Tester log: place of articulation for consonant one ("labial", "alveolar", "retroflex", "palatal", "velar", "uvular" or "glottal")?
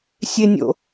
alveolar